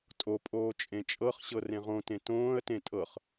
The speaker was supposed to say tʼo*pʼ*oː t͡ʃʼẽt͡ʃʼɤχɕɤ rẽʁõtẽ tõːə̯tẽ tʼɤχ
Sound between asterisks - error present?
no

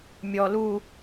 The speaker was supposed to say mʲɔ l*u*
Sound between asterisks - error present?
no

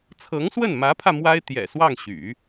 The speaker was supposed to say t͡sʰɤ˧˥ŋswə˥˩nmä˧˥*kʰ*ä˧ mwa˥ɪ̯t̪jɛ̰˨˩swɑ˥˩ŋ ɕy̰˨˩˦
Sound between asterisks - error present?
yes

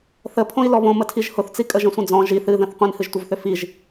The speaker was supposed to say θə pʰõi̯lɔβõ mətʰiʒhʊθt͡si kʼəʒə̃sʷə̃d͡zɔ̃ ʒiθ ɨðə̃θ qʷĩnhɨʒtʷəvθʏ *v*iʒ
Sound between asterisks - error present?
yes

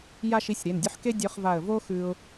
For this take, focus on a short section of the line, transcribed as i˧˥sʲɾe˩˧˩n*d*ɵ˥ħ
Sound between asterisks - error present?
yes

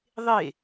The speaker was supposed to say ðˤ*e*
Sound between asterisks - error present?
no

